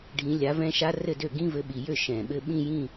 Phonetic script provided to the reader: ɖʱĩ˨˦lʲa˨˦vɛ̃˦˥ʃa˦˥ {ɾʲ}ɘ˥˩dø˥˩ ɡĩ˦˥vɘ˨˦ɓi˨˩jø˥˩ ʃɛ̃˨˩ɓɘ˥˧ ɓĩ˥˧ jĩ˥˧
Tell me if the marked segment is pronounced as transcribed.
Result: no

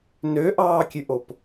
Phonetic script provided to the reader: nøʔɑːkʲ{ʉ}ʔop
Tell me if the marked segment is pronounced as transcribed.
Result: yes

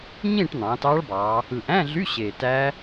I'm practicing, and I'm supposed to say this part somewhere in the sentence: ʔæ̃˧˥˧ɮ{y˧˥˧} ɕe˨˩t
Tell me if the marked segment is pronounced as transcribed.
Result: yes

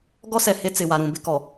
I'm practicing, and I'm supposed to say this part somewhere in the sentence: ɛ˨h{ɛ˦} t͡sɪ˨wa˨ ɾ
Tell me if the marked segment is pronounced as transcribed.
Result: no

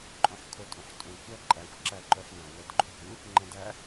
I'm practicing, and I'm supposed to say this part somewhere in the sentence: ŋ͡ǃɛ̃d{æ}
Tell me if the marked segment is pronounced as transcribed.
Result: yes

